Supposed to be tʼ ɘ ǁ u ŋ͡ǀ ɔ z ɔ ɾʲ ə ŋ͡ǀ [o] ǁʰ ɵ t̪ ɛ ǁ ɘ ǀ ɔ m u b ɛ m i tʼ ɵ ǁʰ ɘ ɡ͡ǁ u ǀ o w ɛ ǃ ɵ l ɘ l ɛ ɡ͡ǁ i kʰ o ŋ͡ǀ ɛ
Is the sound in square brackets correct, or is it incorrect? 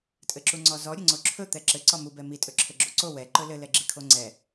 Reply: correct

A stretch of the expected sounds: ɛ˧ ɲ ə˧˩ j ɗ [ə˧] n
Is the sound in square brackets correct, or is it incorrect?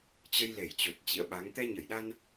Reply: incorrect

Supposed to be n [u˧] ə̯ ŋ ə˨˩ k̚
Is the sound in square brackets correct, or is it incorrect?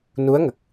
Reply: incorrect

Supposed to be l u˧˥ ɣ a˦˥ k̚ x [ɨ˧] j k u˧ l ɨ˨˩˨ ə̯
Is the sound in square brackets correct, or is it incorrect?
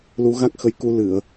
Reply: incorrect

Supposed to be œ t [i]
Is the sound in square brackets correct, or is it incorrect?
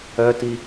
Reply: correct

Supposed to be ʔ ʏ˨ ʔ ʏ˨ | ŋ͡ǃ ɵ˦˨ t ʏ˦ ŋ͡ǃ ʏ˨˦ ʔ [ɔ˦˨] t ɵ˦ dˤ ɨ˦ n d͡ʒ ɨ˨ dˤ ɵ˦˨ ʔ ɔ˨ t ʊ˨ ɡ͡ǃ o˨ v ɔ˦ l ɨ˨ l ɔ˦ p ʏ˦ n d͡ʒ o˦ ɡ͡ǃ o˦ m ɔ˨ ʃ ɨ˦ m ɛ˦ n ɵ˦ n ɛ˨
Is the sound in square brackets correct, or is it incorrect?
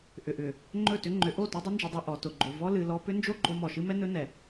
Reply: incorrect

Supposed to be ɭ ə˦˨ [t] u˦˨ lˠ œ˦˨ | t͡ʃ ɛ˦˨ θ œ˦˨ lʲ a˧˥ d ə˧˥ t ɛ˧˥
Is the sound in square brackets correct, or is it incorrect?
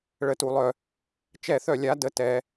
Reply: correct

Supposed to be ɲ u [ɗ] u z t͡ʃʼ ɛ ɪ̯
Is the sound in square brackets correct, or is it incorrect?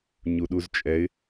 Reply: correct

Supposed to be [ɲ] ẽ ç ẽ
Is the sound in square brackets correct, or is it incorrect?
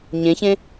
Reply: correct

